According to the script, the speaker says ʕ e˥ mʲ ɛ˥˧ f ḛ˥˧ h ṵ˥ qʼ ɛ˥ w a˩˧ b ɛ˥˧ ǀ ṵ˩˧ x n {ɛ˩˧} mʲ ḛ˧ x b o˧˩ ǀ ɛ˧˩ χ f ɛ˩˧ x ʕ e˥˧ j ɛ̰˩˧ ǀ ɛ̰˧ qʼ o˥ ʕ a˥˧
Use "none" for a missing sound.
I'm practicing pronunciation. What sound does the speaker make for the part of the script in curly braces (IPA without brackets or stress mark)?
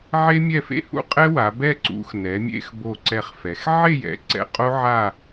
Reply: ɛ˩˧